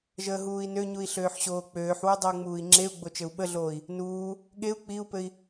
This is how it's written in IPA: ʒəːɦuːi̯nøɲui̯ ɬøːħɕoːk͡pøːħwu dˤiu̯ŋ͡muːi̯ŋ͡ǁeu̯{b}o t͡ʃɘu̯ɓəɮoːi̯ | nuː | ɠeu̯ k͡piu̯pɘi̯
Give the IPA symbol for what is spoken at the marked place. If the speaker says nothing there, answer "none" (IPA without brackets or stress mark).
ɡ͡b